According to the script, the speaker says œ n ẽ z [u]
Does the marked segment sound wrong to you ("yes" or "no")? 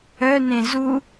no